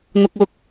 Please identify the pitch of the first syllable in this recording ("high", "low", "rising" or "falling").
high